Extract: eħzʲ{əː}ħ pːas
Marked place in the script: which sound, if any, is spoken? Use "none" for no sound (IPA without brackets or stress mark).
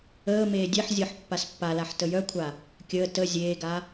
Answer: əː